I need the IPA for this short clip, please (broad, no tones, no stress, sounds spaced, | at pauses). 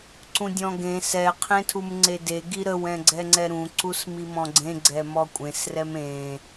ǀ ũ dʲ ɔ̃ ɡ ẽ s ɛ qʰ ẽ tʰ u m ŋ͡ǀ e d e ɡ i ɾ ə w ɛ̃ ɡ͡ǀ ɛ ŋ͡ǀ ɛ ɾ ũ ǀ u s m i m ɔ̃ ɡ͡ǀ ẽ ɡ͡ǀ ɛ m ɔ kʷʼ ẽ s r ɛ m ẽ